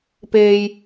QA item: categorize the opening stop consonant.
plain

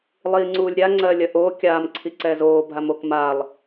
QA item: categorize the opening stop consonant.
click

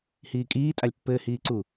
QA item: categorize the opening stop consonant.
ejective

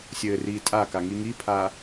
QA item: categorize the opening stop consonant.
ejective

